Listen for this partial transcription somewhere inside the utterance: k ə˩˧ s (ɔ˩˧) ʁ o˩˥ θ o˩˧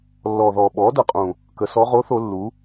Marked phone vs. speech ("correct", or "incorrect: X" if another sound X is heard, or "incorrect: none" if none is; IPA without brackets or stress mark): correct